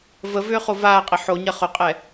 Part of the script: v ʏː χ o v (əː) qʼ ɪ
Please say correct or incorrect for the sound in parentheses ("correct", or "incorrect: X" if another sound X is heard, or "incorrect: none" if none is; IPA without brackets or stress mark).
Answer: incorrect: aː